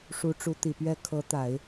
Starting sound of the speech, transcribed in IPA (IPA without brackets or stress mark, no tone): ʂ